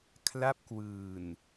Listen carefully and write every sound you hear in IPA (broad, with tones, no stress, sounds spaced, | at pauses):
kʰ l a˦˥ p̚ k w ɯː˨˩ n